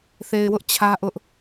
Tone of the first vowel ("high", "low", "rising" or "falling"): low